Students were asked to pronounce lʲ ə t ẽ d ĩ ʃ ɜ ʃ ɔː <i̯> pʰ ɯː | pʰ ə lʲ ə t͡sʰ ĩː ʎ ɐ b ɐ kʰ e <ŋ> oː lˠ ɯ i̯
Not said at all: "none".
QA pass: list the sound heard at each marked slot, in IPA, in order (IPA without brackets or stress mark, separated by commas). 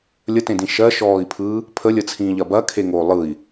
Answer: i̯, ŋ